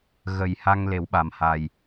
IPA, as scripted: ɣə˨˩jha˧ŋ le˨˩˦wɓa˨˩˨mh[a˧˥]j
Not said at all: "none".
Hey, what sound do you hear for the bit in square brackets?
a˨˩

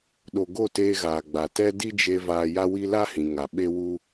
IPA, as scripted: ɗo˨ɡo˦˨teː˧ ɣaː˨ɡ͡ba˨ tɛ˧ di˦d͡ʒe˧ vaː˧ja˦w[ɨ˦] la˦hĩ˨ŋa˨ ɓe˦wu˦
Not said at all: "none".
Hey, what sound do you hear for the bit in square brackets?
i˦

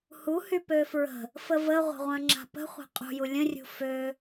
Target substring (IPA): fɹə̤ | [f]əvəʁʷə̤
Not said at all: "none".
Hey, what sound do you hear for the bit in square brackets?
f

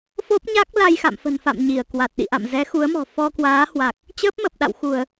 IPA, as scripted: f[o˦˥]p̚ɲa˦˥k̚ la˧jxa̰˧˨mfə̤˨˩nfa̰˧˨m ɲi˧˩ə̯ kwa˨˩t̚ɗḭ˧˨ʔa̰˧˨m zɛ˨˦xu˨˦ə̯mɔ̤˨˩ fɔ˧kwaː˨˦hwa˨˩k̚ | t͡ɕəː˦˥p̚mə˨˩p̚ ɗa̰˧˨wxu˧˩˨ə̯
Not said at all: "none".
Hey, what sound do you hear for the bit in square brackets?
o˦˥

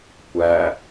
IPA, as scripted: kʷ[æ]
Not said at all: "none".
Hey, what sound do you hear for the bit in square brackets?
æ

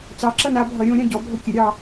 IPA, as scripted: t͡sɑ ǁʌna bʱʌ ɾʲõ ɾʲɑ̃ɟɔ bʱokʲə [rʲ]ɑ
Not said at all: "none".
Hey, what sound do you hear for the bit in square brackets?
ɾʲ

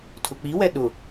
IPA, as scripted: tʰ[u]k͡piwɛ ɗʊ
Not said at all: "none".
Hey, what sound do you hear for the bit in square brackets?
ʊ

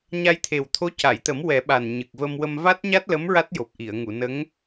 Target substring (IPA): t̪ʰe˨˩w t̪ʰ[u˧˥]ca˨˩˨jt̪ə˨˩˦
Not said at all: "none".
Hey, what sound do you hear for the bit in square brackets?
o˧˥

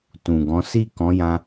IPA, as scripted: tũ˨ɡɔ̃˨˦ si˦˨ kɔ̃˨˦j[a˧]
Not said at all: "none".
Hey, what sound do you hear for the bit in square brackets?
ã˧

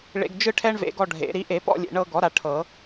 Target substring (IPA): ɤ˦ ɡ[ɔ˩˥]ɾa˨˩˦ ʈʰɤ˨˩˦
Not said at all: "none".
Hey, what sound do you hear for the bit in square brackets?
ɔ˩˥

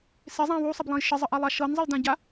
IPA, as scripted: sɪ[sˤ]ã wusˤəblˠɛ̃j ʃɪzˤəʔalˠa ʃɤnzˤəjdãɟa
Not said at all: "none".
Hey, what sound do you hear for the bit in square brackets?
zˤ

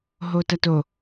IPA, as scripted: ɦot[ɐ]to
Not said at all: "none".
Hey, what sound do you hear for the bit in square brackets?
ɐ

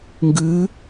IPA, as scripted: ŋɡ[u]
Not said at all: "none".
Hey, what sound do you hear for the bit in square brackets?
ʉ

